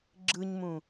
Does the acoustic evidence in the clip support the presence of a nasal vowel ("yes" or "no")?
yes